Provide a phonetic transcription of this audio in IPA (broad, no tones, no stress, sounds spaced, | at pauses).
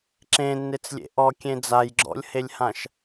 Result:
ǁ ẽ nː e t͡s lʲ ḛ ʔ ɔ kʲ ẽ d͡z a j ɡ͡ǁ ɔ̰ lʲ h e lʲ h ã ʃ